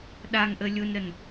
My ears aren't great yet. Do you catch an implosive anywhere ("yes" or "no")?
yes